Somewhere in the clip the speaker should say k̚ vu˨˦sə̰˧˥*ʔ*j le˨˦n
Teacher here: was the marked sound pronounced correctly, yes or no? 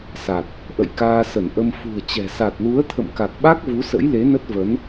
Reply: no